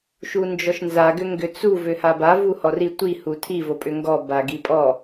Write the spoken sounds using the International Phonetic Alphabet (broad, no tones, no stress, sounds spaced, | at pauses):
ʃ u n d͡ʒ ɔ ʃ n z a ɡ ʏ ŋ ɡ ʏ t͡s u v ʏ h a b a v u h ɔ r i tʷ i h u tʰ i v o pʼ ʏ ŋ ɡ ɔ b a ɡ i pʼ ɔ